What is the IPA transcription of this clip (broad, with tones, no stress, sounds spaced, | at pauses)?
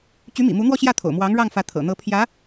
t͡ɕ y˧˥ m ḭ˨˩ m u˧˥ n̪ w ɔ˥˧ ɕ j ä˥˩ t̪ʰ o̰˨˩ ʊ̯ m w ɑ˧˥ ŋ ɻ ɑ˥˩ ŋ f ä˧˥ t̪ʰ ɤ̰˨˩ n̪ ɤ˧˥ pʰ j ä˧˥